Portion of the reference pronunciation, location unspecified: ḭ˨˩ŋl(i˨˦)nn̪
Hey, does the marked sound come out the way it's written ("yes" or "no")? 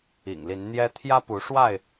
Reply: yes